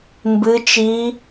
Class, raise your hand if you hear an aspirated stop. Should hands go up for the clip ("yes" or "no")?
no